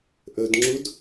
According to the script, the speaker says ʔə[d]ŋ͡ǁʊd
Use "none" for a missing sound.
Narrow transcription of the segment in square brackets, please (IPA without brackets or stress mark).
d